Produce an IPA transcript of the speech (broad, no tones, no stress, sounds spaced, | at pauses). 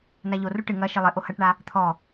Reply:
n a ʎ o r u ʈ ɨ ŋ ɐ ʃ ɘ lˠ ɘ ʔ o h ɐ ʈ ɳ a | t̪ʰ ɔ